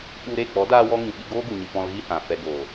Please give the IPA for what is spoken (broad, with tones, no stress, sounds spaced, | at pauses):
ɓ u˧ ɾ e˦˨ k͡p ɔ˨˦ d aː˧ w ɔ˧ ŋ ĩ˨ ɓ i˧ ɡ oː˦ ɡ u˨ ɲ ɨ˨ p ɔ̃˧ l ɣ i˦ h ã˨ f ɛ˨ ɡ oː˨